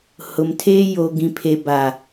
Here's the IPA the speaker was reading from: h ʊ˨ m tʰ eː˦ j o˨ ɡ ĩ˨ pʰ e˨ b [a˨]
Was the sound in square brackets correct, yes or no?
yes